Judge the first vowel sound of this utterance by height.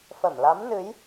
mid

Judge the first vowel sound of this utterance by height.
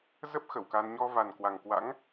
mid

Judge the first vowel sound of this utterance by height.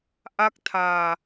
low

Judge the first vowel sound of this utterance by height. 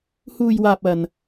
high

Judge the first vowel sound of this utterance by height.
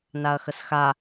low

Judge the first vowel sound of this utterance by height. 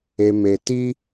mid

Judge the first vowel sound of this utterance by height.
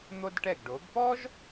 mid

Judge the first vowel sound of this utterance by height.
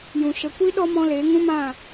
high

